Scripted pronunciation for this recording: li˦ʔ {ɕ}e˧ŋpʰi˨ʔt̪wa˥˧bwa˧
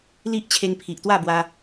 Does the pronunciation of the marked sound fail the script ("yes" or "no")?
yes